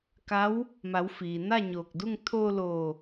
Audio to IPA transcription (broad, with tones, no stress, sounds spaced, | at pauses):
k a˧˥ w | m a˩˧ w f iː˩ n a˥˨ ɲ oː˧˩ k̚ d u˥˨ ŋ t̪ʰ oː˧ l oː˧˩